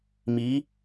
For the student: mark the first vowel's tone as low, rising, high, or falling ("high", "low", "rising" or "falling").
rising